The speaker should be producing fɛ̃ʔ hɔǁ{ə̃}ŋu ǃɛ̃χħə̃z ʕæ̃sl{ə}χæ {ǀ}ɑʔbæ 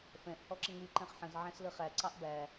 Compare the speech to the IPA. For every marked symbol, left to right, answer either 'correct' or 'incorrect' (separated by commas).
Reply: correct, correct, correct